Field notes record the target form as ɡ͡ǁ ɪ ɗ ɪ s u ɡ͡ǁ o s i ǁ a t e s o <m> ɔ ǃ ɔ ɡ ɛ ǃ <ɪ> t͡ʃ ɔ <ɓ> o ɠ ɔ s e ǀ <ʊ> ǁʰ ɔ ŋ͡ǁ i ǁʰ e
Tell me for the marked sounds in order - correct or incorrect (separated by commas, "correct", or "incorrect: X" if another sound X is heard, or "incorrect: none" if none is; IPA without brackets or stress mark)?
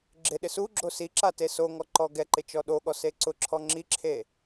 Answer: incorrect: ŋ, correct, incorrect: ɗ, correct